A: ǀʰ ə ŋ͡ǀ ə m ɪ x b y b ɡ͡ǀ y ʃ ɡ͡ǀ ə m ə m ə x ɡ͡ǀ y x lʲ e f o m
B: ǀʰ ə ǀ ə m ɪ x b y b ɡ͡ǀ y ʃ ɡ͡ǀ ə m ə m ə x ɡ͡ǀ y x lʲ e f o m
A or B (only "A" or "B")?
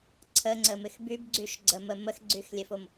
A